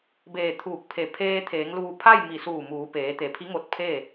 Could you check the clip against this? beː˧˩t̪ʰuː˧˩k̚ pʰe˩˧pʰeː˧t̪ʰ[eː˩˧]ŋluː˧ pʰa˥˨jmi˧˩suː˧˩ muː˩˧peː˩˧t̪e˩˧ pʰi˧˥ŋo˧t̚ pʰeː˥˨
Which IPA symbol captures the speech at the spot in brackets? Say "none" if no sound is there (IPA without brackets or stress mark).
eː˩˧